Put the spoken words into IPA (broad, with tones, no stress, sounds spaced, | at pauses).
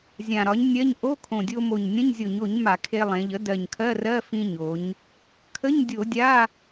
zʲ ã˨˩ ɾ ɒ˩˥ ɲ nʲ ɜ˧˥˧ ɲ ʔ o˧˥˧ kʰ õ˨˩ dʲ o˧ m o˨˩ ɲ nʲ ə̃˧˥˧ ɲ zʲ o˧˩˧ ɲ o˧˩˧ ɲ m a˧˩˧ kʰ e˧ lˠ ẽ˩˧ ʎ ə˩˥ d ɜ˨˩ ɲ kʰ ɜ˧˥˧ r ɜ˧˥˧ f ĩ˧ ɲ o˩˧ ɲ | kʰ ə˧˥˧ ɲ dʲ o˧˩˧ dʲ a˧˥˧